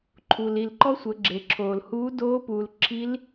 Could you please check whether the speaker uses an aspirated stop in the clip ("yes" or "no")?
yes